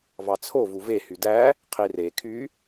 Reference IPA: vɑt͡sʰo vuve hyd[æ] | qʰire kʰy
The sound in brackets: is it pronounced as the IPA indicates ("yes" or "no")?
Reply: yes